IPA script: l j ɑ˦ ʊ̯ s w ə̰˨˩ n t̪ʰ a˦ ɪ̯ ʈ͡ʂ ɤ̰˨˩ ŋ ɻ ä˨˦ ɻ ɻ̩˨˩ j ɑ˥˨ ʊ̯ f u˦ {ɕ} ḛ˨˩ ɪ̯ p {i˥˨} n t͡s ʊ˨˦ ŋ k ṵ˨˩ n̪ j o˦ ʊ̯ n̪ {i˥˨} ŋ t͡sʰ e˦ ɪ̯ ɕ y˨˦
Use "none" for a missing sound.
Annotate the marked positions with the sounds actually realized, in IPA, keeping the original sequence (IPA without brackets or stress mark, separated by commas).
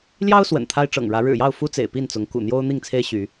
t͡s, i˥˨, i˥˨